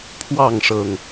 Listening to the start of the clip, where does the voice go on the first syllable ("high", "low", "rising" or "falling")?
falling